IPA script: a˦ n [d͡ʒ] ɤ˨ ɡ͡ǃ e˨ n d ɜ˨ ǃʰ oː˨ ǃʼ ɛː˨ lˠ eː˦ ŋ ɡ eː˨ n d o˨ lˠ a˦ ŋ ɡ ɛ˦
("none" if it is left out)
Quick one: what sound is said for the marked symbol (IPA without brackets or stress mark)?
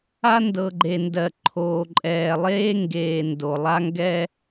d